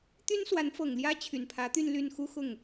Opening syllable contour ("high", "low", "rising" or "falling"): high